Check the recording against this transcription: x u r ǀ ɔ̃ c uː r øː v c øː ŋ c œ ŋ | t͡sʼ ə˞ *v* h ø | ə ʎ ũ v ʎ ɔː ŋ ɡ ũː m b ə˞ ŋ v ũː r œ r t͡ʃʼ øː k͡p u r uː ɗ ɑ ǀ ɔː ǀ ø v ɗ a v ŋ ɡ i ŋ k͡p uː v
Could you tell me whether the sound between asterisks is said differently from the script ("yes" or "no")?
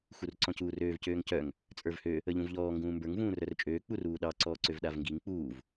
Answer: no